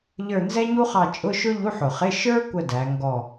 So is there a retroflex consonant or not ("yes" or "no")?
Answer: no